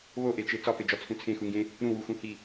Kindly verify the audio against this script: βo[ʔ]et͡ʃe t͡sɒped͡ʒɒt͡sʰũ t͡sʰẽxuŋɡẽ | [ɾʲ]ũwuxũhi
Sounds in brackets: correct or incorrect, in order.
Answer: correct, incorrect

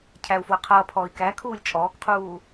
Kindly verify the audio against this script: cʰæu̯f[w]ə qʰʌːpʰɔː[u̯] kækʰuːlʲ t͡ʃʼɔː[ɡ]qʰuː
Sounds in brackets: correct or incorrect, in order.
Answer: correct, incorrect, incorrect

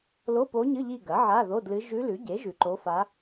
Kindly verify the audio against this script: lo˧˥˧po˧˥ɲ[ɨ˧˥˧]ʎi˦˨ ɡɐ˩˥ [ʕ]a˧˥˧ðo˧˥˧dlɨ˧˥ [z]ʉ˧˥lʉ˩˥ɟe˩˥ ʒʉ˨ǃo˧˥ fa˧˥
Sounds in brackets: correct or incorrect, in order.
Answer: correct, correct, incorrect

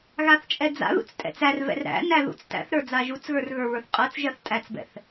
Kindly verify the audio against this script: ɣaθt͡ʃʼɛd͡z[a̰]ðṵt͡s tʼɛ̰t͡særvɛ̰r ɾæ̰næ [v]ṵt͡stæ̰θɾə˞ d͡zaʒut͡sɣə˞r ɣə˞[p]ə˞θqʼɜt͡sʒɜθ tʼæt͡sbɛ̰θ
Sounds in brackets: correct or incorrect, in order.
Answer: correct, incorrect, incorrect

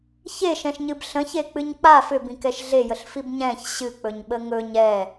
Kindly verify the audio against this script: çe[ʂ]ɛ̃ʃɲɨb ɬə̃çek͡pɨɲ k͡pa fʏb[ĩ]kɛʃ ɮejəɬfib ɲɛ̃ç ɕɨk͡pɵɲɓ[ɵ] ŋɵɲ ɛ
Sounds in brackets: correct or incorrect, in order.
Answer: incorrect, correct, incorrect

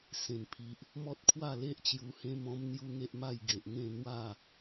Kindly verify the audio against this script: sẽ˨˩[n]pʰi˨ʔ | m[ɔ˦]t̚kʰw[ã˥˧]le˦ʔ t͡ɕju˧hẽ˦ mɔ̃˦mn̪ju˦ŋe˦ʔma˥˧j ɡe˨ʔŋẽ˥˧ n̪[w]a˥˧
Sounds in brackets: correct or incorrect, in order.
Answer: correct, correct, incorrect, correct

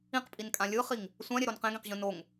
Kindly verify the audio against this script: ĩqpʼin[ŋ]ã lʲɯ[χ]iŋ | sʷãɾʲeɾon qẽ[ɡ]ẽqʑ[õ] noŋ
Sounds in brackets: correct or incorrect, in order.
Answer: incorrect, correct, correct, incorrect

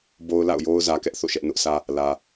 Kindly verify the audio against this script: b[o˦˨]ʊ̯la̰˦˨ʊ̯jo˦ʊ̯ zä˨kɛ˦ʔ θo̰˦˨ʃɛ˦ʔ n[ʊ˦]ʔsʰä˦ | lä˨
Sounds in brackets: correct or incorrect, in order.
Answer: incorrect, correct

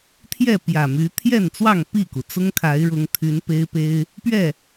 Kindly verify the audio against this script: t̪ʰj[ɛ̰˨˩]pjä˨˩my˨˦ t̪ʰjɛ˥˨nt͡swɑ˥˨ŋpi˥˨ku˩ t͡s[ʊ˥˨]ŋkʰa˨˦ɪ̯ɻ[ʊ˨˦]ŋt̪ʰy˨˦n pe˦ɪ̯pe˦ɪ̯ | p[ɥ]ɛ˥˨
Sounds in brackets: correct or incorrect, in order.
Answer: incorrect, incorrect, correct, correct

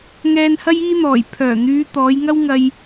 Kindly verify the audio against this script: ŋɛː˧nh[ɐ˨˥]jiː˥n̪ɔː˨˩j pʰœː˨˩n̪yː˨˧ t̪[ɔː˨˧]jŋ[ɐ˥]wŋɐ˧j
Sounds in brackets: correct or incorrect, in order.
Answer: incorrect, correct, correct

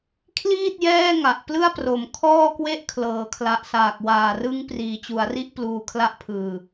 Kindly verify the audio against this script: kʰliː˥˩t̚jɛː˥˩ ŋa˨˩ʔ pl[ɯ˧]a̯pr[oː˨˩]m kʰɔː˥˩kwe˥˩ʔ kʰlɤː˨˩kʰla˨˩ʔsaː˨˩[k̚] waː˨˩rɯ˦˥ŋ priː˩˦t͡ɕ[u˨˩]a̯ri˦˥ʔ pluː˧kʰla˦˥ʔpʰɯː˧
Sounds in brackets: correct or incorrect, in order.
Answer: incorrect, incorrect, correct, incorrect

